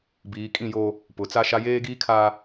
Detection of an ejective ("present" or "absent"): present